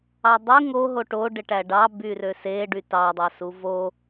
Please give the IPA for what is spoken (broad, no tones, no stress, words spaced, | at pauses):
ɑdˤy ŋo ɦoʈo ɖeʈæɖɑ byrøse ɖytɑ dˤɑsuvo